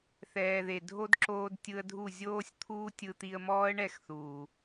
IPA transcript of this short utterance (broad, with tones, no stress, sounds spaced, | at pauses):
θ ɛː˨ ð e˨ dʱ o˦ d ǁ oː˧ d tʲ ɯ˧ ə̯ dʱ u˦˨ zʲ oː˦ sʲ t̪ʰ uː˦ tʲ ɯ˧ t̪ i˧ ə̯ m ɔː˦ ə̯ ɳ ɛ˦˨ x θ uː˨